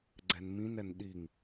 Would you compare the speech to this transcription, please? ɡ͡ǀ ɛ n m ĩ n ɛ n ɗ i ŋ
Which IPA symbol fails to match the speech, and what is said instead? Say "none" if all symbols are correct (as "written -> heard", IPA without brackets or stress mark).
none